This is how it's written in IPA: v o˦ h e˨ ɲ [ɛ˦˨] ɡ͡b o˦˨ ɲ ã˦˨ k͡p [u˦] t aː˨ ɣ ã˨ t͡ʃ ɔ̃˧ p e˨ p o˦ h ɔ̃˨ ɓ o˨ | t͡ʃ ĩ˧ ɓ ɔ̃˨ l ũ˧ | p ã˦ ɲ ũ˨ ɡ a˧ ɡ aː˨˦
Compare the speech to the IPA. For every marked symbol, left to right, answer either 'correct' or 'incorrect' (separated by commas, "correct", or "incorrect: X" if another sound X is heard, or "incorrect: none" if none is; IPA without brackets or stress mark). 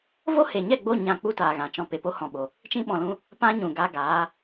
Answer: correct, correct